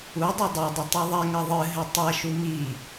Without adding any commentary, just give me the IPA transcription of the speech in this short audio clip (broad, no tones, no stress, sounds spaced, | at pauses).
u dˤ e dˤ i dˤ ɘ tˤ u ðˤ ɛ ŋ ɐ ðˤ ɨ ɦ ɘ tˤ ɐ ʃ u m i